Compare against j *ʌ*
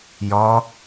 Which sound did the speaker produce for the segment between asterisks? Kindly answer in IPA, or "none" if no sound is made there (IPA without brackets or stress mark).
ɒ